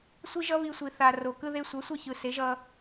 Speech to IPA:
sʷ i˦ ʒ ʌ˦ β i˧ sʷ i˨ θ a˨ r o˨ k ɯ˧ ð e˧ sʷ ʌ˨˦ sʷ ʌ˦ ç ɯ˨ s e˨˦ ʒ ʌ˧

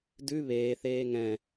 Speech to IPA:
d ʉ β eː θ eː ŋ ɛ̃

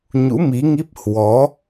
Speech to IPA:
ɲ ṵ˧˥ m i˨˦ ŋ i˦˥ p̚ h w ɔ˨˦

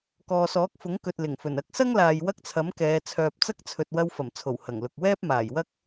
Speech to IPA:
k ɔː˨ s ɔː˨˥ k̚ f ʊ˨˥ ŋ k ɵ˨ t̚ l ɪ˨˩ ŋ f ɵ˨˩ n ɐ˨˥ k̚ s ɐ˥ ŋ l aː˨ j w ɐ˥ k̚ t͡sʰ ɐ˨˥ m k ɛː˨˧ t͡sʰ œː˨ p̚ t͡s ɐ˥ k̚ t͡sʰ ɵ˨ t̚ w ɐ˧ w f ɐ˨˩ m t͡sʰ o˨˩ w h ɐ˨˩ ŋ l ʊ˨ k̚ w ɛː˥ p̚ m aː˨˩ j w ɐ˥ k̚

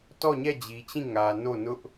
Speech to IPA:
t ɔ˦˨ ɲ ɛ˦˨ d͡ʑ i˨ t͡ɕ ĩ˦˨ ŋ ä˨ n o˦˨ n ʊ˦ ʔ

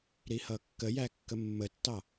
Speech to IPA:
ɾ i h ʌ kː ə j æ kː ə mː ə tː ɑ

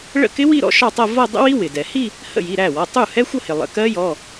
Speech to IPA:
ɭ ə̰˥˩ k ɪ˦˥ w i˥˧ ɾ ɔ̰˦˥ ʃ ɑ˥˧ tˤ ʌ˥˧ v ʌ˥˧ dˤ ə̰˦˥ w i˦˥ w ɪ˩ d ɛ˩ h i˥˧ | h ə̰˥˩ j i˩˧˩ ɾ æ˥˩ w ɒ˩˧˩ tˤ u˥˩ h ɛ˦˥ xʷ ʌ˥˧ h ɪ˩ lˠ ə̰˩˧˩ k ɜ˦˥ j ɔ˩˧˩

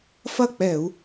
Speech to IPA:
f ɐ˥˩ k͡p ɛ˧˩˧ u̯

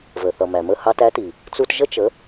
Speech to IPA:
v ə˩ θ ʌ˩ m æ˩ m ə˥˩ h ɑ˧ t æ˩˥ t i˩ | t͡s u˧ t ʒ ə˥ t͡ʃ ə˩˥

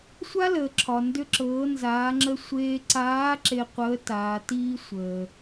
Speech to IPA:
sʷ a˥ l əː˩ ǁʰ ɒ˩ n d ʏ˧ ǁ ɤː˩˧ n z aː˩˧ ŋ͡ǁ ə˧ sʷ eː˧ ǀ aː˧˥ ǁ e˧ qʷ əː˧˥ t aː˩˧ t iː˥ sʷ əː˩

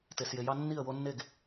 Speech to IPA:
t e˨ s j e˨ j ɑ˦ nː i˥˨ ə̯ w o˦ nː e˥˨ ɡ

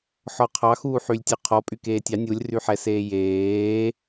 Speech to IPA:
ħ ɔ qʰ ɑ x uː ħ y lʲ tʲ ø qʰ ɔ pʼ y k eː tʲ ɑ nʲ u lʲ r y ħ ɛ s eː j eː

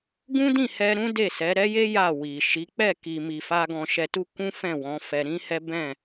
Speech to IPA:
ɡ ũ˦ d ĩ˦˨ h ɛ˧ ɾ ũ˦ d e˦˨ s ɛ˨˦ ɾ ɛ˦ j e˦ j a˦˨ w i˨ ʃ i˨˦ k͡p ɛ˦˨ k i˨ m i˨ f a˧ ɡ ɔ̃˧ ʃ ɛ˧ t u˦ k ũ˦ f ɛ̃˦˨ w ɔ̃˨˦ f ɛ˧ ɾ ĩ˦ h ɛ˦ b ɛ̃˦˨

